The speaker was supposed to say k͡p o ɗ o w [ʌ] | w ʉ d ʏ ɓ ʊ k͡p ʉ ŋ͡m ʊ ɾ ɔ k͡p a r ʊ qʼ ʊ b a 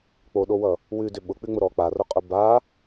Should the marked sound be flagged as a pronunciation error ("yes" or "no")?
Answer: no